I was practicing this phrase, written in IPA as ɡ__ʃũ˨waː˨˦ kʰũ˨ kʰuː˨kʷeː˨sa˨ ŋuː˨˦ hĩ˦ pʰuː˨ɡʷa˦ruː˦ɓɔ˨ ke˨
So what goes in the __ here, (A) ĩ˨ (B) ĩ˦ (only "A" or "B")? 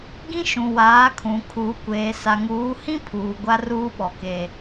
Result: B